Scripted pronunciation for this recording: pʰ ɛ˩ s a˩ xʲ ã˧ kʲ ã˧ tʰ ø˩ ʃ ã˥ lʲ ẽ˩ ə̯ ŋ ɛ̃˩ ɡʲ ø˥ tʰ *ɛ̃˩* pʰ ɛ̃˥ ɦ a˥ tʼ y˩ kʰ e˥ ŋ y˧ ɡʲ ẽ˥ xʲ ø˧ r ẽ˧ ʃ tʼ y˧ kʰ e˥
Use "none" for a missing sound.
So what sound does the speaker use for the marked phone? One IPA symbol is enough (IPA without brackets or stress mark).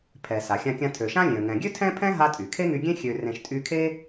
ɛ̃˥